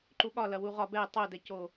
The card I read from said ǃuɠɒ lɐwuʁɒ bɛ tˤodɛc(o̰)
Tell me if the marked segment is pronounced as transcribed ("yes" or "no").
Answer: no